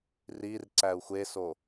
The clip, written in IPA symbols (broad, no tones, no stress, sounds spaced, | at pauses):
r i r ǀ æ u̯ xʷ e s o